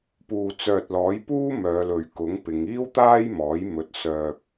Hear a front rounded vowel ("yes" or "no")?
yes